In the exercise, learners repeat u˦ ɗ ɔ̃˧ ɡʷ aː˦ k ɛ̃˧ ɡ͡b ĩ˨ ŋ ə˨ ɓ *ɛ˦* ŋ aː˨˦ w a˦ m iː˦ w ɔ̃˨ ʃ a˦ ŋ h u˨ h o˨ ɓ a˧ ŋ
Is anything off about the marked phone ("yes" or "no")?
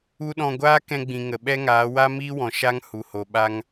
no